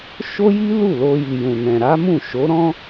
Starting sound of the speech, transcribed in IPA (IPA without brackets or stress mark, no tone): ʃ